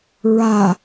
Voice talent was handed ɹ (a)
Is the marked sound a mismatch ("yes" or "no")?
no